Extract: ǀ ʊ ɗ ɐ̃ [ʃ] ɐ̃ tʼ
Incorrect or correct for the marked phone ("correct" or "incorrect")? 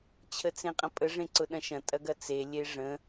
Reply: correct